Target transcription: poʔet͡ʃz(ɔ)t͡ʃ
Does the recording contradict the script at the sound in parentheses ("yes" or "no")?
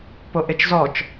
no